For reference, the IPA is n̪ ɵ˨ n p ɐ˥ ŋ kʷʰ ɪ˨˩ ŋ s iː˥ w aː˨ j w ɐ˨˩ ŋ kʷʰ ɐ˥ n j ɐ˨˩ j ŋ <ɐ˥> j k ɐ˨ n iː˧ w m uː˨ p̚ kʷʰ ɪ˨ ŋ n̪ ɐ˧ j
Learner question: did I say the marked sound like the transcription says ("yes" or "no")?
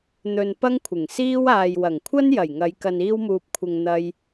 no